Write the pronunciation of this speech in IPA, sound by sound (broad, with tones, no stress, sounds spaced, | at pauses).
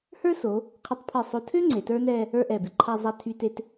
h ə˞˥ s o˩˧ | qʰ e˧ tˤ pʰ e˧˩ sˤ o˧ tʰ ø˥ ŋ͡ǀ e˩˧ t ə˞˥ n ɛ˥˧ | ə˞˥˧ ʔ ɛ˧˩ b e˧ ǃʰ a˥˧ zˤ a˥˧ tʰ y˧ t e˧ t